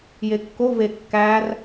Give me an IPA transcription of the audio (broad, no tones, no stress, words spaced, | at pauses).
jekːo vekːær